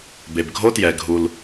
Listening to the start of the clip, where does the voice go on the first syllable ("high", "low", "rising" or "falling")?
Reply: low